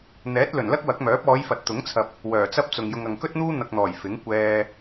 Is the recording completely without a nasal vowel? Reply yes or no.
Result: yes